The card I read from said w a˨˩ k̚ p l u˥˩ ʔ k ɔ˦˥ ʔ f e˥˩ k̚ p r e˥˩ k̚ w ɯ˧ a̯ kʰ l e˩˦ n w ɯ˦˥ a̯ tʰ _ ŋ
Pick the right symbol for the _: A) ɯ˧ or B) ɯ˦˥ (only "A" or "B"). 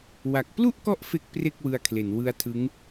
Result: B